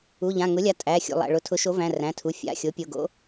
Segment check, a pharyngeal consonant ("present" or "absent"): absent